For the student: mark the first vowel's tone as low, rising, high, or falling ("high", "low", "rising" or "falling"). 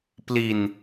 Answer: low